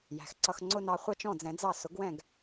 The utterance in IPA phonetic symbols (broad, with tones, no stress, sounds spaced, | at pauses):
j æ̤˩ x ǀ ʌ˧ x ŋ͡ǀ ʊ˥ n ɑ˧ χʷ ɑ˥ t͡ʃ ɔ̃˥˩ d͡z ɛ̃˩˥ d͡z ɑ˥˩ s ʊ˩˥ ɡ w ɛ̃˥˩ ɡ